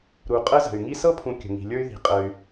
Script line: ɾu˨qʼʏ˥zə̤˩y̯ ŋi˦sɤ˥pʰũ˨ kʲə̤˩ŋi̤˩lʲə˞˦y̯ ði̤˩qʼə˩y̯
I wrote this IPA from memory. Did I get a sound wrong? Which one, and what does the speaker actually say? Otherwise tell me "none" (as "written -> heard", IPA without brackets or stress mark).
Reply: ʏ˥ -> ə˥